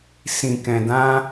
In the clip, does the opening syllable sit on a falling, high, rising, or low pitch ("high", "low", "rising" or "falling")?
low